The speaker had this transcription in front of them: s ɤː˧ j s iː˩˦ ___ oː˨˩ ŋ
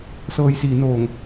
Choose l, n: n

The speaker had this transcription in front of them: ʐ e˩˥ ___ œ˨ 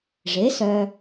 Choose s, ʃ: s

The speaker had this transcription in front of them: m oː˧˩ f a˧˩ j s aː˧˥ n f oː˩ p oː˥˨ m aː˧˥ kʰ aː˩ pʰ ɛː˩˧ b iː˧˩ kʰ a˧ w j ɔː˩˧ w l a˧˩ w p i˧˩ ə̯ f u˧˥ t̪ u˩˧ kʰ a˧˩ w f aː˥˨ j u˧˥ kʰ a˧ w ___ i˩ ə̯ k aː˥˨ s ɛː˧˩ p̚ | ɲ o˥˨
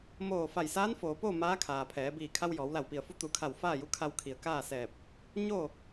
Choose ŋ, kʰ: kʰ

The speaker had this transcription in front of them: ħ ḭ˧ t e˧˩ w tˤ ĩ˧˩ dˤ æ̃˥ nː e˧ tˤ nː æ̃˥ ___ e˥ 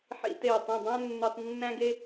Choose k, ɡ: ɡ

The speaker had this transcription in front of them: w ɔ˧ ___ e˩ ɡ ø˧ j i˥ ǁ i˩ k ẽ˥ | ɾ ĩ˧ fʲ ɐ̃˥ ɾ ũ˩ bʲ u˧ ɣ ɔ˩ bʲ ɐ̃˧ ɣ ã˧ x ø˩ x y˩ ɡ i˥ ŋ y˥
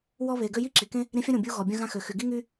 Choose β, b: β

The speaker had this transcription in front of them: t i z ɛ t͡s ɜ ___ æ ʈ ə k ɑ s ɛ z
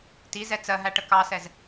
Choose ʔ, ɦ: ɦ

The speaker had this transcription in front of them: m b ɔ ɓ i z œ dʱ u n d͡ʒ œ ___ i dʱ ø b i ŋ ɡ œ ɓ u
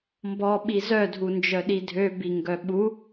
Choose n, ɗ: ɗ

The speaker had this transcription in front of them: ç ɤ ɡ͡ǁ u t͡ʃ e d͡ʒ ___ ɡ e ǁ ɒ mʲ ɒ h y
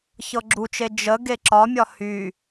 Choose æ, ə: ə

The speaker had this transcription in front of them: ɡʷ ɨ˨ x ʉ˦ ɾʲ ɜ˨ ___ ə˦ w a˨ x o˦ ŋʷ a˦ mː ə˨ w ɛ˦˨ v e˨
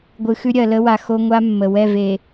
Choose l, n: l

